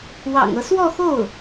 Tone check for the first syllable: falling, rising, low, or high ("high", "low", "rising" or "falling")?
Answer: low